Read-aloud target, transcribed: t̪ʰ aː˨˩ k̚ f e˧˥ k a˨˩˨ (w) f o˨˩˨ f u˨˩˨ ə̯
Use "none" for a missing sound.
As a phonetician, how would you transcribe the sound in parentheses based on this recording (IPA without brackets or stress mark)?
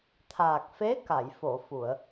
j